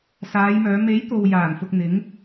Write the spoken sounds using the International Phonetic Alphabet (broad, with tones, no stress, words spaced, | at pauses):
saː˨˧jmœː˨˧ me˨˥j t̪o˧w jaː˨˩nfʊ˨k̚ n̪ɪ˨˥ŋ